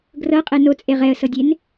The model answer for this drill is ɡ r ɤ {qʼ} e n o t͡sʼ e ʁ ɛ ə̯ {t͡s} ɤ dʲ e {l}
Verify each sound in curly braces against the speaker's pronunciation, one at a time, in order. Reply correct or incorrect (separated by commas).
correct, incorrect, incorrect